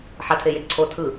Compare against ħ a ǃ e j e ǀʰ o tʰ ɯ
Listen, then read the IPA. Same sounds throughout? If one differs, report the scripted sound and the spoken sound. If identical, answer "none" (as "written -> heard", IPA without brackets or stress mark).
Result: ǃ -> tʰ